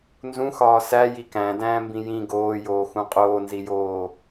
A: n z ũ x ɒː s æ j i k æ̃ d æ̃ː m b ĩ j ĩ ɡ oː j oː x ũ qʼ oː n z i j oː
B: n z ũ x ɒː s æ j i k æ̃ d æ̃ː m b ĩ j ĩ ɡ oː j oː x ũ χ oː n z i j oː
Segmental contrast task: A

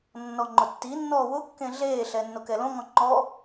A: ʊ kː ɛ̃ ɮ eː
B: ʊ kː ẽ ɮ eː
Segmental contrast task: B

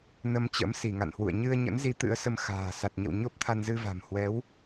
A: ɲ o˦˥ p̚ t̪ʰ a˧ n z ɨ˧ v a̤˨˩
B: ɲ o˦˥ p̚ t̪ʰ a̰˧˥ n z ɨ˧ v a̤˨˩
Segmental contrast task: A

